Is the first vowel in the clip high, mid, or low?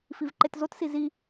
high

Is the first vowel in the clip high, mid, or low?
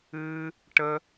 high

